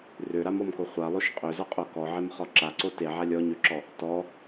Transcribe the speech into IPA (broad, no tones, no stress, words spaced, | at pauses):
røɾamɔmko χʷalˠoʃ qʼøzɔqʼo kɔʕemχɔ ǁaǀo teʕa lʲɔɲøǁɔ | tɔ